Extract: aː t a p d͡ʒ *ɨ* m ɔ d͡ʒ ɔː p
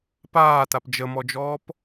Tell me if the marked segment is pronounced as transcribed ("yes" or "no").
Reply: no